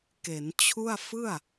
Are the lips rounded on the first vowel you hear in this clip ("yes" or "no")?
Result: no